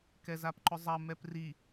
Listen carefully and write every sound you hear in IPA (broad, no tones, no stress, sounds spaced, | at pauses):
k ɛ z a p ǃ ʊ zˤ ɐ m ɛ p r i